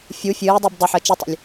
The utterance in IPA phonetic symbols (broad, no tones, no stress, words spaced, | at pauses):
fʲu fʲɨːdˤub dˤʏħəː t͡ʃɨtˤə̰lʲ